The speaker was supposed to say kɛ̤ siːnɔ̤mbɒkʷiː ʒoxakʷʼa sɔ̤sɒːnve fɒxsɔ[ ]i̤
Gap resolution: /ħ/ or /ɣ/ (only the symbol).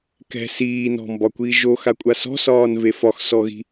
ɣ